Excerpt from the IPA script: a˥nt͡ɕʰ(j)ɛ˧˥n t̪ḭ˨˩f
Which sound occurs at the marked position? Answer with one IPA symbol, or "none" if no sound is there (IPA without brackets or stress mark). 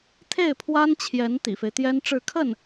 j